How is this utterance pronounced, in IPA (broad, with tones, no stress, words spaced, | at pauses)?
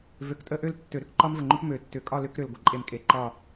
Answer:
vø˨˩˦ktʼə˥˧ ʔø˥˧ltːø˨˩˦ɾʏ˥˧k ǃɒ˥mvə˧˩ŋ͡ǃʏ˥p mø˨˩˦tːʏ˨˩˦kʼɒ˥˧ lʏ˥kɾʏ˧˩l ɡʷə˧˩ǃʼe˧˩mkʼe˨˩˦ ǃɒ˧˩